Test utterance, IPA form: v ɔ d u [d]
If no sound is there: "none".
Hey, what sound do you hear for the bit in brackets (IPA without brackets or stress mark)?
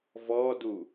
none